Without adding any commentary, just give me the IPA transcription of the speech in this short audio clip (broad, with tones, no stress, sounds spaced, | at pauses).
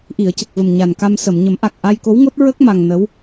ʔ i˨˩˨ ə̯ c ə˨˩ k̚ v ə˨˩ m ɲ a˨˩ n k a˧ m s ə˨˩˨ m ɲ ə˨˩˦ m ʔ a˨˩ k̚ ʔ a˧ j k o˧˥ w ŋ o˦˥ t̚ ɹ ə˦˥ k̚ m a˧ ŋ n ə˧˥ w